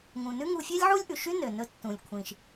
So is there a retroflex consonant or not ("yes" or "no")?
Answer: no